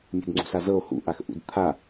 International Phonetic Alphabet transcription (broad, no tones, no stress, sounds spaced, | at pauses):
mʲ ṳ d ŋ͡ǀ ṳ s a z ɤ o̯ h ṵ ʔ a x ʔ ṵ d t̪ʰ a